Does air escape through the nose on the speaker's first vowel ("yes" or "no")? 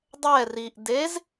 no